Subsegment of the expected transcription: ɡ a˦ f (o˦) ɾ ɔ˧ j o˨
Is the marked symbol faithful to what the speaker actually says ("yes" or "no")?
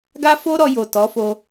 yes